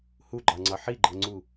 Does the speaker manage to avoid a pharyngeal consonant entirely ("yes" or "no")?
no